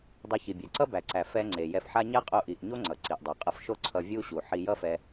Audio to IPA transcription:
dˤ ɛ˧ ç i˩ bʲ æ˩ ǀ ʌ˥ b æ˩ ǀ æ˩ f ɛ˧ ŋ͡ǀ e˩ j ɛ˧ f ħ a˥ ɲ a˥ qʼ o˧ ʔ i˩ ʔ ɲ o˥ ŋ͡ǀ ʌ˩ ǀ i˩ ʔ dˤ o˩ qʼ ʌ˧ f ʃ o˥ ǀʰ ʌ˧ vʲ u˥ ɕ u˩ ħ i˧ j ʌ˥ f ɛ˧

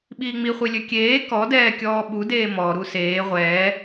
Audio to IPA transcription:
ɓ iː ŋ͡m i χʷ i lʲ ø kʲ eː k ɔ d ɛː kʲ ɔː ɓ u d eː m ɔ ɾ u s eː ʁʷ ɛː

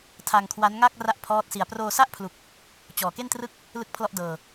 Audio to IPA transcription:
tʰ a˧ ŋ kʰ w a˦˥ n ŋ a˥˩ k̚ r a˥˩ ʔ pʰ ɔː˦˥ t̚ s i˧ a̯ p r oː˧ s a˥˩ ʔ pʰ l u˨˩ k̚ | t͡ɕ ɔː˨˩ k e˥˩ n t r ɯ˥˩ k̚ | l ɯ˥˩ k̚ pʰ l ɔ˥˩ ʔ d ɤː˧

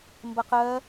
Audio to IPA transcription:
m b ʌ q ɜ

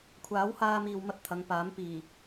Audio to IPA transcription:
kʷʰ aː˨˥ w h aː˧ m iː˨ w m ɐ˧ t̚ t̪ʰ ɐ˨˧ ŋ p aː˨˥ m p iː˨˩

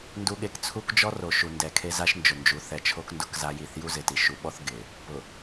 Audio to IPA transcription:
n d u˨ ɠ e˨ k t͡sʰ u˦ k d͡ʒ ɔ˦ r o˨ ʃ u˨ n d ɛ˨ kʰ e˦ z a˦ ʃ n d͡ʒ ʊ˨ n d͡ʒ u˨˦ θ ɛ˨ t͡ʃʰ o˦ k n d ʊ˦ k z a˦ j i˦˨ θ j u˦ z ɪ˨ t i˨ ʃ u˨˦ ɓ ɔ˦ θ ɡ ɪ˨ | p ʊ˨

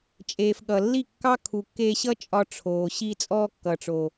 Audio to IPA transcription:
t͡ʃʼ eː˨ f ɠ ʌ˨ lː i˦˨ kː ɑ˦ kʰ u˨ kː eː˧ ɕ ʌ˦ t͡ʃʼ ɒ˧ ʈ͡ʂʰ oː˨ ɕ i˧ t͡sʼ ɔː˧ kː ʌ˨ ʈ͡ʂ o˨

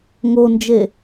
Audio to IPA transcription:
ŋ o n d͡ʒ e

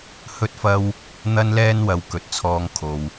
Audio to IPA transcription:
h ɵ˥ t̚ f ɐ˥ w | n̪ ɐ˥ n l ɛː˥ n w ɐ˨ w k ɵ˨ t̚ t͡sʰ ɔː˧ ŋ kʰ o˨ w

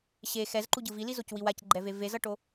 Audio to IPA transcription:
ɕ e x ɛ z ǃ u ɟ ɯ v i l i z o c w i w a c ɡ͡ǃ ɛ v e v e z ʌ ʈ o

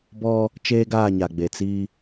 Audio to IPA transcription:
b ɔ˦ | t͡ʃ eː˦ ɡ aː˦˨ ɲ a˨ ɡ͡b e˨ t͡s i˦

